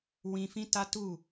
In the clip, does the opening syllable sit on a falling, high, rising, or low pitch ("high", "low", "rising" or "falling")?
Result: high